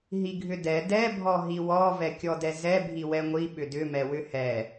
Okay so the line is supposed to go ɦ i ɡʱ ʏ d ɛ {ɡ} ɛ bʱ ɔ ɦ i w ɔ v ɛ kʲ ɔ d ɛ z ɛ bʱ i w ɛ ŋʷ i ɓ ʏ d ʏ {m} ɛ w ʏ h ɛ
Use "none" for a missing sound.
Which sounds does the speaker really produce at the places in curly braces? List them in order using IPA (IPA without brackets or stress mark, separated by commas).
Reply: d, m